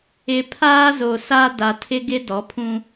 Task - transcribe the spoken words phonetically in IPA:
ɪ˨ pʰaː˦zo˨sa˦da˨ tʰɪ˦ɡɪ˦ dɔ˨˦pʰũ˦

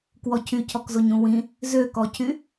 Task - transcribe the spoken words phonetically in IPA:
kwɔcʰycʰɔkzoɲ ũwĩ | zøkɔcʰy

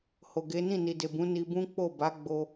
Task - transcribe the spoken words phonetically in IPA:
ho˨ɡe˨˦ nĩ˦˨ni˨de˨ bũ˨˦ni˧bũ˦ k͡po˦˨ba˨˦ ɡ͡bo˧

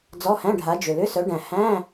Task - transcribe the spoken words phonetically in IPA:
d͡zɔ˧˥˧hæ̃˧˥˧ɖʱa˨˦d͡ʒʏ˨˩ lʏ˧˥˧sœ˨˦ɖæ̃˨˩ hæ̃˧˥˧

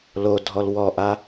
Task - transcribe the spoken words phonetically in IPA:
lodʱɔl wɔʔa

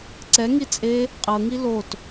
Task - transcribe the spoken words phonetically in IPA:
ǀɛŋi t͡sʼe | qʼɤŋi lot

